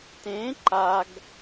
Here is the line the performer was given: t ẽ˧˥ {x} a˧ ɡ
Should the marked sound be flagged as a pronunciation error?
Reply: yes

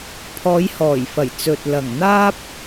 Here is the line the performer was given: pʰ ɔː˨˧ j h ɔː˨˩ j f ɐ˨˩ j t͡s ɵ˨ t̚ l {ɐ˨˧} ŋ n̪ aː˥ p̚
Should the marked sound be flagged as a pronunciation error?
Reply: yes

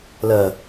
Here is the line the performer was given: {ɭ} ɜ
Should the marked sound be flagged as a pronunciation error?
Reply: yes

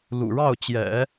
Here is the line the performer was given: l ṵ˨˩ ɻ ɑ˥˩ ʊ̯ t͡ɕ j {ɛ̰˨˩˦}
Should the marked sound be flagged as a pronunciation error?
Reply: no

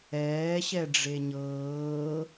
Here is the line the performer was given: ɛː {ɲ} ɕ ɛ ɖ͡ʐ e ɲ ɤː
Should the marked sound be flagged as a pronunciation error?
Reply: yes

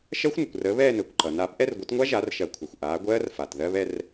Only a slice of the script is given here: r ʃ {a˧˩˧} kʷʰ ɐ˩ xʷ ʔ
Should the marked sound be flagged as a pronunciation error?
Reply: yes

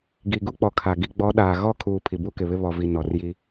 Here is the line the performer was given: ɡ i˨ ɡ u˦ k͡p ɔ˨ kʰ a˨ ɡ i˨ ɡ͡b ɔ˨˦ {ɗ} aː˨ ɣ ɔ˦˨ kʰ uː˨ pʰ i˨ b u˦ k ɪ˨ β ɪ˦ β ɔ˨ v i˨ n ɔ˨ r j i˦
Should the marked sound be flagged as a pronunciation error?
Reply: no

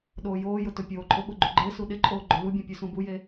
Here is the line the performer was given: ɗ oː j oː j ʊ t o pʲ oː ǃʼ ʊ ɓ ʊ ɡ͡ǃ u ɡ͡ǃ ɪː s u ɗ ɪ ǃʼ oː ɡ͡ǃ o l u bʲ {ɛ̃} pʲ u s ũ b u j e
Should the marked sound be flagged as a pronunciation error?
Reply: no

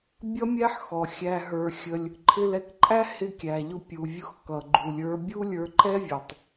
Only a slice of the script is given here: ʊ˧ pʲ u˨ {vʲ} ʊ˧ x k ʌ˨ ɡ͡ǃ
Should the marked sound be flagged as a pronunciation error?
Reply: no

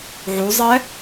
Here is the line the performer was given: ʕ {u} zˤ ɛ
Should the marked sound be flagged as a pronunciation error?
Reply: no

